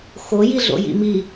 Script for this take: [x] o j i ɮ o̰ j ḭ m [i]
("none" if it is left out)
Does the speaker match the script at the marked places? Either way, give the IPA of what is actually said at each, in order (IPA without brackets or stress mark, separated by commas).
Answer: x, i